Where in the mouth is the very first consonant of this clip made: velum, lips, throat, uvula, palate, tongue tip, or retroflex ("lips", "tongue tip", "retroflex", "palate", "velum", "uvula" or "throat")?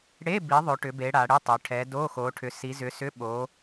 retroflex